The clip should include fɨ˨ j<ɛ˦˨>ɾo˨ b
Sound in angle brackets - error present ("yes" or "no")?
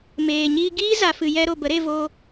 yes